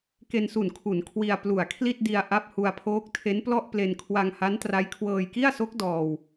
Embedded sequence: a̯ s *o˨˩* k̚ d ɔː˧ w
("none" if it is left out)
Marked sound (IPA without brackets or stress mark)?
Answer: o˦˥